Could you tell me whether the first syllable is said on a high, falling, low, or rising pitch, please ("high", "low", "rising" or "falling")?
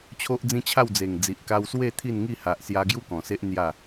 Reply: high